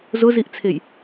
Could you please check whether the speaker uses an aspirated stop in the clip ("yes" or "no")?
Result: yes